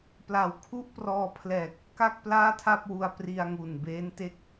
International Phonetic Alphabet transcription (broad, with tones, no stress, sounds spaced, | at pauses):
p l a˨˩ w kʰ u˥˩ ʔ p r ɔː˧ pʰ l ɛː˨˩ k̚ | k a˥˩ k̚ p l aː˥˩ tʰ a˥˩ p̚ w u˧ a̯ p r i˧ a̯ ŋ u˨˩ n b eː˦˥ n t e˦˥ k̚